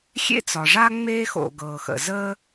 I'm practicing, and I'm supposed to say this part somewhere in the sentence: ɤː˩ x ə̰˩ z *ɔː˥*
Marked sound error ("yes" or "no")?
yes